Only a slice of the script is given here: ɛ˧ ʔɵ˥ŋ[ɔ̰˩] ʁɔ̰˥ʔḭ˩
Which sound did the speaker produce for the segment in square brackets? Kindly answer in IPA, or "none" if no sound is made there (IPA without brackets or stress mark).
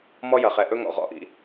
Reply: ɔ̰˩